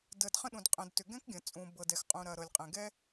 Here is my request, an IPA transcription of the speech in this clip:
d əː˩ d χ ə̃˥ ɗ ũ˩ d qʼ ə̃˩ d t ʏ˩ ɡ ɛ̃˥ k ɡʲ ə̃˩ t͡sʼ ũ˩ b ɤ˩ d ɛ˩ x qʼ ũ˩ ɾ ɐ˩ ɾ ɤ˩ lʲ qʼ ɛ̃˩ ɡ ɛ˥

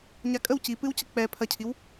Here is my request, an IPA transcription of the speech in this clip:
ɲ a kʼ ə w c i p ɨ w c ə k͡p ɛ pʰ ɐ cʰ i w

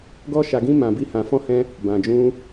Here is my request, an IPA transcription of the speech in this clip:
ɡ ɔ˦ ʃ a˧ ɡ ĩ˦ m ã˧ b i˦ h ã˧ f ɔ̃˦ h ɛ̃˦ | b ã˧ d͡ʒ ũ˦

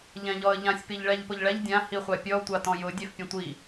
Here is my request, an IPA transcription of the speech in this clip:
ʎ ɛ̃ ʎ ɔ ə̯ ʎ ã sʲ p i ʎ ɭ ɛ ʎ p ʊ ʎ ɭ ɛ ʎ dʲ ã h i χʷ a pʲ ɔ tʷ a t ɔ̃ j ʊ dʲ ɛ f pʲ ɛ̃ tʷ i

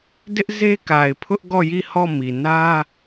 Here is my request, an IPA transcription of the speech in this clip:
d ɪ˦ ʔ z e˦ k a˨ ɪ̯ pʰ ʊ˦ ʔ ɡ ɔ˦˨ j i˦˨ h ɔ˦˨ m i˨ n ä˦

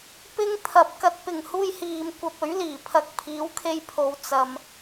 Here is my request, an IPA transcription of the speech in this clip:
p ɪ˥ ŋ t̪ʰ ɐ˨ p̚ k ɐ˨ t̚ p ɪ˨˩ ŋ h uː˧ j h iː˨ m kʷ ɐ˧ p̚ ɵ˨˥ ɥ l iː˨˩ pʰ ɐ˨ k̚ pʰ iː˨˥ w kʰ e˧ j pʰ o˨ w t͡s ɐ˨ m

